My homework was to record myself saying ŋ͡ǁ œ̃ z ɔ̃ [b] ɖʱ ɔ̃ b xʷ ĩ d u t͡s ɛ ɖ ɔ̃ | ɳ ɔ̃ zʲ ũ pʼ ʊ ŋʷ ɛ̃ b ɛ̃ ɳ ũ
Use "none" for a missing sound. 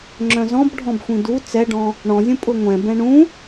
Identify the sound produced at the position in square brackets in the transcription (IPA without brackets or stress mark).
b